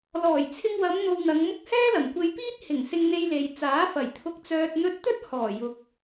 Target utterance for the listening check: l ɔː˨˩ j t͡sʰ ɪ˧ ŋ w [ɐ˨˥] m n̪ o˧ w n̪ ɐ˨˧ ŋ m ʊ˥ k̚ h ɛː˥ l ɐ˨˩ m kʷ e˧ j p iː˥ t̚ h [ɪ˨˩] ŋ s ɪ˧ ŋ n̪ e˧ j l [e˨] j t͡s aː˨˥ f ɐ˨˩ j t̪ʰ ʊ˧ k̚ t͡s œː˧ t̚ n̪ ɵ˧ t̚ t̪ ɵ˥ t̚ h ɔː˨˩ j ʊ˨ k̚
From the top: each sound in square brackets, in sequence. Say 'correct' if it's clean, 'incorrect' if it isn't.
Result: incorrect, correct, correct

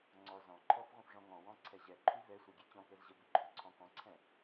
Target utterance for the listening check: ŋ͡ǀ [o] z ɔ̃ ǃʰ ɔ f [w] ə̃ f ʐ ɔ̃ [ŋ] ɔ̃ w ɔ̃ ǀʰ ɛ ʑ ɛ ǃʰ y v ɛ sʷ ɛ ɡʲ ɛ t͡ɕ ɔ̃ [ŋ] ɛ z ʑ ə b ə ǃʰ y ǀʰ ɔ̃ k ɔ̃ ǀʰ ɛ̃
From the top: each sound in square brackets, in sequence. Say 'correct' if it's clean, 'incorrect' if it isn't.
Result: incorrect, incorrect, correct, incorrect

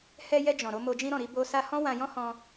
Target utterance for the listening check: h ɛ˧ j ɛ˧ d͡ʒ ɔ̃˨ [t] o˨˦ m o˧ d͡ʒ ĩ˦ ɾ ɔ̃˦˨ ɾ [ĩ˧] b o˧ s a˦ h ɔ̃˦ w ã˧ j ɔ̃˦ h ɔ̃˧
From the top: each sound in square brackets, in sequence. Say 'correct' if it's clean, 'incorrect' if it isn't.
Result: incorrect, incorrect

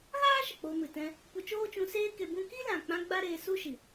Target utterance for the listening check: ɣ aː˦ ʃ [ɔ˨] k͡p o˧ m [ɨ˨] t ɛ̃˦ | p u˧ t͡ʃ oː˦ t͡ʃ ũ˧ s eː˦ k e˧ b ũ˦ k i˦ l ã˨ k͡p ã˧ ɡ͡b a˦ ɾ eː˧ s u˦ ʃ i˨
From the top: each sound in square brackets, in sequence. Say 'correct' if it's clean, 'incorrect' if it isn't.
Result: incorrect, correct

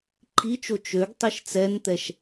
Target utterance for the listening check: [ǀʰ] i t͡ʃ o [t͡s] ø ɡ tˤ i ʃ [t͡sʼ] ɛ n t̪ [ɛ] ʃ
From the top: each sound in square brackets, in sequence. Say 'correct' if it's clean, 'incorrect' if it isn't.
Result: incorrect, incorrect, incorrect, correct

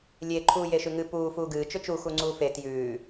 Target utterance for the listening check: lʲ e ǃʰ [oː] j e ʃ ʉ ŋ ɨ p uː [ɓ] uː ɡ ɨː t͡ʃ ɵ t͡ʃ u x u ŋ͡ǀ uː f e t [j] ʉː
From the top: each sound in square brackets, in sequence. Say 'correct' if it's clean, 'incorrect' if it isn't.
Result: incorrect, incorrect, correct

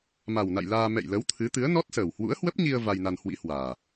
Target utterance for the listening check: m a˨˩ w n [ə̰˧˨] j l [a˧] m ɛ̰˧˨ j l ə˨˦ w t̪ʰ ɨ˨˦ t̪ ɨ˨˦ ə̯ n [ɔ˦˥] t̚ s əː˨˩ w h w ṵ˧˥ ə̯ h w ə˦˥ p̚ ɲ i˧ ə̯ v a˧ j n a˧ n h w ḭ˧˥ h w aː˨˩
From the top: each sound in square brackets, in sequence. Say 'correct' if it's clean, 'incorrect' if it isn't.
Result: incorrect, incorrect, correct

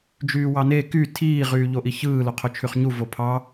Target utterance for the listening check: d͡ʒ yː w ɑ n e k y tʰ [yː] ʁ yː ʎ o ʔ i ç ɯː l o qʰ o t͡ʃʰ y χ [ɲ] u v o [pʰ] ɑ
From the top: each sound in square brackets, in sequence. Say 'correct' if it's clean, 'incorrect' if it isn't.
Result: incorrect, correct, correct

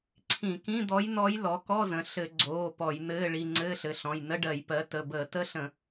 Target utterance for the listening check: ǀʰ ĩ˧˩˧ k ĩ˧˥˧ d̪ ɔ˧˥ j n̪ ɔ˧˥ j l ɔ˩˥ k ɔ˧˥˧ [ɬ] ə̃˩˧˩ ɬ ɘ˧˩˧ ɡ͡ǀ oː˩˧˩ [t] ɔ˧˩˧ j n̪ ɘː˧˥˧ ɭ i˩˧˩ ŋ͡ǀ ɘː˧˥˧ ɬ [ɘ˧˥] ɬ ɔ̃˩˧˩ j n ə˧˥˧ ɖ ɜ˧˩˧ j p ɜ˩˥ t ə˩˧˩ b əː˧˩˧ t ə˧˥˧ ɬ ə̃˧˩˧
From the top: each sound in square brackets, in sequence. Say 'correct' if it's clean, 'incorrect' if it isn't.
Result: incorrect, incorrect, incorrect

